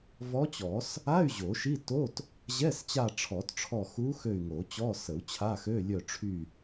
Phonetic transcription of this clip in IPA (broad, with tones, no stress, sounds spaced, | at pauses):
v ɔ˧˥ t͡ɕ ɔ˨˩˦ s | a˧˥˧ y̯ ʑ o˨˩˦ ʃ i˧˥˧ t o˧˥˧ t | ʑ ɛ˧˥˧ s t͡ɕ a˦˨ ʈ͡ʂʰ ɔ˨˩˦ t ʈ͡ʂʰ ɔ˦˨ x u˧˥ x ø˦˨ y̯ ŋ o˨˩˦ t͡ɕ ɔ˧˥˧ s ə˨˩˦ u̯ t͡ɕʰ a˧˥˧ x ø˧˥˧ lʲ œ˦˨ ʈ͡ʂʰ y˦˨